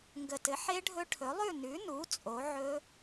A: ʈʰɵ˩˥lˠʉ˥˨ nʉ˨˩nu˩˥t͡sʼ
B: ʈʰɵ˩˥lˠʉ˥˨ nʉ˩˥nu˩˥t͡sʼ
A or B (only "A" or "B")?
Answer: B